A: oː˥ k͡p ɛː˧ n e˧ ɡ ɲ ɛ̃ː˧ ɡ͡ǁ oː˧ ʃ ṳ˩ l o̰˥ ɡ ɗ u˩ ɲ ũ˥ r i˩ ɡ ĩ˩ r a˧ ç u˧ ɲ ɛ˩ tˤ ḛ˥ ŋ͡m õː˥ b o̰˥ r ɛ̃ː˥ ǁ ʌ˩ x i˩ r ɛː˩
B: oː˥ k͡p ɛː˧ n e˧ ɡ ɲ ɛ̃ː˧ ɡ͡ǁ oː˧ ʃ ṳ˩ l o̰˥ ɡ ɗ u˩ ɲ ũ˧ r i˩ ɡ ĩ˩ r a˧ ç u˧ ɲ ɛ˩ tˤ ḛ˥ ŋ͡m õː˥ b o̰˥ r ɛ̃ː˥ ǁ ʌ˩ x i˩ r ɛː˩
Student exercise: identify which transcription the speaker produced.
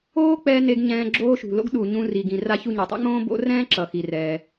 B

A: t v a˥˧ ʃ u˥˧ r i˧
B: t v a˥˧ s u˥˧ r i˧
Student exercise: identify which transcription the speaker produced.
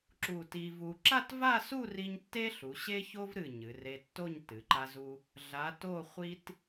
B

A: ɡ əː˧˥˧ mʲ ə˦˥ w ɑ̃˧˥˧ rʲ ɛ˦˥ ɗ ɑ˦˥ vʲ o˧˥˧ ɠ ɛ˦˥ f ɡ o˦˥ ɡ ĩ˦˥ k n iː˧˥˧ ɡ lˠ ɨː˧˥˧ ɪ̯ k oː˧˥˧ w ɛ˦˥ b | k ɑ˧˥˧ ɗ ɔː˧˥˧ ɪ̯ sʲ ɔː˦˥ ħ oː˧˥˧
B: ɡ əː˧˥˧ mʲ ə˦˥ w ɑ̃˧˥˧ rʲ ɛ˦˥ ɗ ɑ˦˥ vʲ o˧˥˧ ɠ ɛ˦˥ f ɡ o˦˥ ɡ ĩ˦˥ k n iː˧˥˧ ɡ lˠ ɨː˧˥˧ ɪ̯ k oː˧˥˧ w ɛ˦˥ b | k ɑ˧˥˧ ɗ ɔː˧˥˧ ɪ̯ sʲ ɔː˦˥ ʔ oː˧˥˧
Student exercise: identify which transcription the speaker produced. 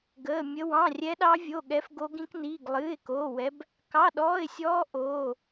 B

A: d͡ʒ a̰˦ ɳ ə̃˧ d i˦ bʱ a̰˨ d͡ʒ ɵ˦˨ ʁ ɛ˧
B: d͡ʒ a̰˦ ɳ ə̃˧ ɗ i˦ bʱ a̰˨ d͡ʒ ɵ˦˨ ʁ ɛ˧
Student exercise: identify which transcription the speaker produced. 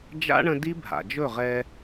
A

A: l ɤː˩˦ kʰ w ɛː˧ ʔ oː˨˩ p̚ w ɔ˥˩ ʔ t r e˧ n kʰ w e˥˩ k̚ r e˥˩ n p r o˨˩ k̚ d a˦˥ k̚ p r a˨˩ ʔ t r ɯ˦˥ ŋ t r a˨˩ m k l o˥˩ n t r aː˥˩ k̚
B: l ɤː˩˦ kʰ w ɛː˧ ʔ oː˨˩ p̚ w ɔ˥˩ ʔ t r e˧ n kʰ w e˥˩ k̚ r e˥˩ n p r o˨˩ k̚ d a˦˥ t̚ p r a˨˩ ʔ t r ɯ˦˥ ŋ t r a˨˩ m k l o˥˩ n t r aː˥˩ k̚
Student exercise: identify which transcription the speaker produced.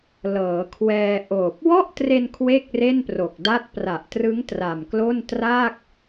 B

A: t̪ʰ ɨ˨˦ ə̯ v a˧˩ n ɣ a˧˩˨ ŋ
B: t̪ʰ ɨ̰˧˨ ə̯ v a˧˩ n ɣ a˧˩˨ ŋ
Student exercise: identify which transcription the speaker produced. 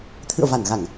B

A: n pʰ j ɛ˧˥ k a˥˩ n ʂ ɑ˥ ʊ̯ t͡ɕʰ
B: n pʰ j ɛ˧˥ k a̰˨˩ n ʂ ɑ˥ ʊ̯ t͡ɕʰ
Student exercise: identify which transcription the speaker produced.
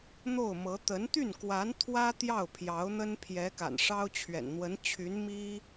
B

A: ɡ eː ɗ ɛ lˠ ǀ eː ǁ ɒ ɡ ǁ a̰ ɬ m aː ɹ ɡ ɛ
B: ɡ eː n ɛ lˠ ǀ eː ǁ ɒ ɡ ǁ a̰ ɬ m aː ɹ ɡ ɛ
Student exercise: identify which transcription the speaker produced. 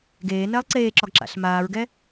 B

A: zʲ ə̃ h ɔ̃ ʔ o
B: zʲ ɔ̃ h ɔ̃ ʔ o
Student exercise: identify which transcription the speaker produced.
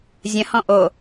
A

